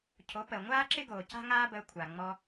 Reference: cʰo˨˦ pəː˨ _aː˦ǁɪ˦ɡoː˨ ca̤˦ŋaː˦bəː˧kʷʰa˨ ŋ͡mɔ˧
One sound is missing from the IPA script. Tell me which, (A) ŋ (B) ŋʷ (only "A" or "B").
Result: B